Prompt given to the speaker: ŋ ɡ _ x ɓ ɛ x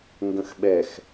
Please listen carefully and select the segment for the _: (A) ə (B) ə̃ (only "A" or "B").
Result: B